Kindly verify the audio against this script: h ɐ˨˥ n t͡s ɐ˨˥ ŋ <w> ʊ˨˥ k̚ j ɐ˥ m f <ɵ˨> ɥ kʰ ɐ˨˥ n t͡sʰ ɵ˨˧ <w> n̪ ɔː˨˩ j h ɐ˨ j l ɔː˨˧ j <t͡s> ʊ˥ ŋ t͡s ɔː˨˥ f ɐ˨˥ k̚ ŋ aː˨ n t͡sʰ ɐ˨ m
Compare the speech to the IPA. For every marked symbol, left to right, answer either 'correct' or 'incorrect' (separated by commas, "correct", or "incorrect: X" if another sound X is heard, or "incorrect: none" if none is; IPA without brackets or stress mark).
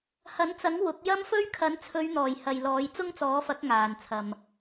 correct, incorrect: ɵ˥, incorrect: ɥ, correct